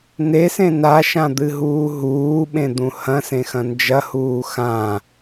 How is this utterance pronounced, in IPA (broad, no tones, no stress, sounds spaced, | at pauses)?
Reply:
n e s ẽ n a ʃ ã d̪ ɨ ɦ uː ɦ uː ɓ ẽ d̪ ũ h ɐ̃ s ẽ x ɐ̃ n d͡ʒ ɐ h uː x ã